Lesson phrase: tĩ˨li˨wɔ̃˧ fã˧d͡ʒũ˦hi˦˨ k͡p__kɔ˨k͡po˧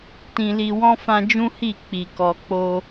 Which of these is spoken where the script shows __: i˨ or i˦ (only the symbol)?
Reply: i˨